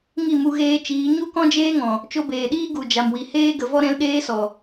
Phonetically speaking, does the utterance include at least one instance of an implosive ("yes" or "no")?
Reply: yes